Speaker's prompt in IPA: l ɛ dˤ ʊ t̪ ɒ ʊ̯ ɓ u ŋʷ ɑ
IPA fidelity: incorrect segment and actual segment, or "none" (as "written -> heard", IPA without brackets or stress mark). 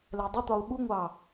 none